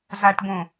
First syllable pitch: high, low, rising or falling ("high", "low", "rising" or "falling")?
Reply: low